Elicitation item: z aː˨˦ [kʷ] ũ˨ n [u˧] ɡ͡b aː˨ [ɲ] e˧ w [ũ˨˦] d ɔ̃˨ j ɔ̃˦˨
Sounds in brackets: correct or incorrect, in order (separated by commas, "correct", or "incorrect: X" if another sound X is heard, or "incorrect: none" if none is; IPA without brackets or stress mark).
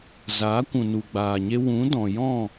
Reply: correct, incorrect: u˨, correct, correct